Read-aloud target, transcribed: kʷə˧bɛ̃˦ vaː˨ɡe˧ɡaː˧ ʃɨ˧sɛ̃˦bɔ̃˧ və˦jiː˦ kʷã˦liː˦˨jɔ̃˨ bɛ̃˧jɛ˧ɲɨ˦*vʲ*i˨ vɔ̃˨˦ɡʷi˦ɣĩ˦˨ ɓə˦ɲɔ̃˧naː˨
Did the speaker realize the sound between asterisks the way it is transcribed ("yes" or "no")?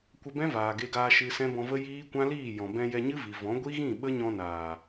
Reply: no